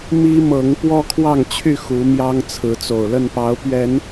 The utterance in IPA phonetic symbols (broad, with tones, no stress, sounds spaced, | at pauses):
m i˦ m ɤ˨˦ ŋ p w ɔ˦ kʰ w ɑ˥˨ ŋ t͡ɕʰ y˥˨ x u˨˦ m j ɑ˦ ŋ t͡sʰ ɹ̩˨˦ t͡s o˨˩ ʊ̯ l ə˥˨ n p ɑ˨˦ ʊ̯ p ɥ ɛ˨˦ n